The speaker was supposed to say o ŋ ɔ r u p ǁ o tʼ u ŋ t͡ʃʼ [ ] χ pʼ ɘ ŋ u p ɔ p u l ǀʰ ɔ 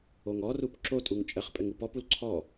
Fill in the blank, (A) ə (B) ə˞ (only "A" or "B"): A